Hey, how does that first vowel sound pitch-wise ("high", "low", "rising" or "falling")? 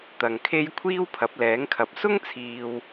low